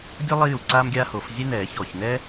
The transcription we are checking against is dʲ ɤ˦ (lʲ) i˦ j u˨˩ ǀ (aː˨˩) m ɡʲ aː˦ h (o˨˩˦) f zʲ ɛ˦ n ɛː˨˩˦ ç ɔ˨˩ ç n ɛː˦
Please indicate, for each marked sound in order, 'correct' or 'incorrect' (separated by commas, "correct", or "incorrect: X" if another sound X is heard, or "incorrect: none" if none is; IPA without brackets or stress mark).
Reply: incorrect: lˠ, incorrect: aː˦, correct